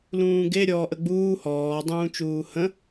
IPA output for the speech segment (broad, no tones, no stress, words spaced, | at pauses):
lũːɡe ɾʲɔːʔəɡ͡buː hɔː dˤũːt͡ʃuːhə̃